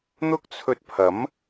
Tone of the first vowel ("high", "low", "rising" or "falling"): high